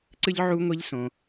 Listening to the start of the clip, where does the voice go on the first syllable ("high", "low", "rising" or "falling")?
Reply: high